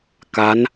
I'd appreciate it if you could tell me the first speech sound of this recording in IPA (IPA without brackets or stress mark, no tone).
k